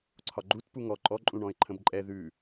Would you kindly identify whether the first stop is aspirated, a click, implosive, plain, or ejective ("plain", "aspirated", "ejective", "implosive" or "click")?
click